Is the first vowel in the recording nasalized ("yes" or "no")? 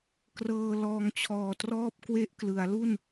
no